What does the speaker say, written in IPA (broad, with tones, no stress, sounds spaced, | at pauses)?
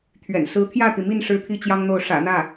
t̪ʰ ɥ ɛ̰˨˩ n s ɹ̩˧˥ t̪ʰ j ä˥˩ t̪ i˩ m i˥˩ n ʂ ɻ̩˥ t̪ʰ i˥ t͡ɕ j ɑ˥ ŋ n̪ o˥˩ ʊ̯ ʂ ä̰˨˩ n̪ ä˥˩